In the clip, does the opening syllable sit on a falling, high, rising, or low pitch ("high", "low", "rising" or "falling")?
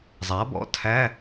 rising